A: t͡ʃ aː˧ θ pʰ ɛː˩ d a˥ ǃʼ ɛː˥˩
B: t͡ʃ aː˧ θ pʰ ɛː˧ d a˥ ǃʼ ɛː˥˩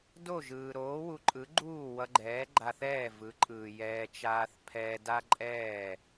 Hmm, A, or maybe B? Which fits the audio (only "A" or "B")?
B